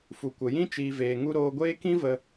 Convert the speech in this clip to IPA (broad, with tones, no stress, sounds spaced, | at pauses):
f u˨ kʷ ə˨ j ĩ˦ t͡ʃ iː˨ v eː˨ ŋ u˧ ɾ oː˧ ɡʷ eː˦ k ĩ˦ v ə˧